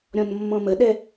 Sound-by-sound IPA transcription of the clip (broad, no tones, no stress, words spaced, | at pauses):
ɾʲɔ̃nmːɔ̃məɗɛ